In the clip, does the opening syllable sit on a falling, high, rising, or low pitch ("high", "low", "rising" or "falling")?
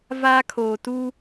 high